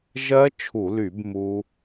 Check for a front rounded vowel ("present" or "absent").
present